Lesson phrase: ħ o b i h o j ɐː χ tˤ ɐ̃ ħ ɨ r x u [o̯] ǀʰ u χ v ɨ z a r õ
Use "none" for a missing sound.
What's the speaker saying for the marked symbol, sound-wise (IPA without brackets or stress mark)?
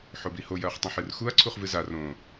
ɐ̯